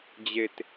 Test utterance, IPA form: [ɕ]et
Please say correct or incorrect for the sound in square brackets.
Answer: incorrect